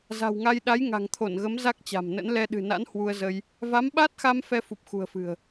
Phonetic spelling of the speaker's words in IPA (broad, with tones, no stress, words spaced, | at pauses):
za̤˨˩wŋa˧j ɗa˨˦jŋa̤˨˩ŋt̪ʰo˧˩nɣə˨˦m za˦˥k̚t͡ɕa̤˨˩mnə̰˧˥n lɛ˧ɗɨ̤˨˩na̰˧˥n hwu˧ə̯zə˧j | va˨˦mɓa˦˥t̚xa˧m fɛ˧fu˨˩p̚ xṳ˨˩ə̯fɨ̤˨˩ə̯